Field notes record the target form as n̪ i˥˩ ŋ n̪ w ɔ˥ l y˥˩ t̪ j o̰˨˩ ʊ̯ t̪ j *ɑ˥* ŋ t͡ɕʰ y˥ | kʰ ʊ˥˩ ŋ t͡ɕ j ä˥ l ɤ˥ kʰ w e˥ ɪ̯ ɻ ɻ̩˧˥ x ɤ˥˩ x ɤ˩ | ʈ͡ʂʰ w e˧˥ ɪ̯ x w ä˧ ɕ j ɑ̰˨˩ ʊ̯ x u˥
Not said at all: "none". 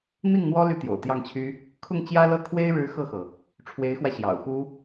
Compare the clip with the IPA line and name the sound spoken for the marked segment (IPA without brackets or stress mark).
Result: ɑ˥˩